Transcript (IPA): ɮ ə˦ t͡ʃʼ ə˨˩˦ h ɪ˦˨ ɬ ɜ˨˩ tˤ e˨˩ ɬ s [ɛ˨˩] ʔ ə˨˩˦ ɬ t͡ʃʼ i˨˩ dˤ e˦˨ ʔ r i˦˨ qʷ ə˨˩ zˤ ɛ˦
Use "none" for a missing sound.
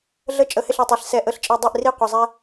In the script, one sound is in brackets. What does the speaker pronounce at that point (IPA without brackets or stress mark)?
ɛ˨˩